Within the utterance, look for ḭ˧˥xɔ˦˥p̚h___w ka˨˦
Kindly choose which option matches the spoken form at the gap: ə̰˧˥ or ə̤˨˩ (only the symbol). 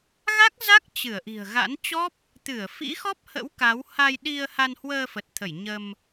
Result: ə̰˧˥